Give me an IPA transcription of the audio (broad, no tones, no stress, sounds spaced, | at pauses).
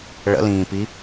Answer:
ɭ ə̰ l ĩː p i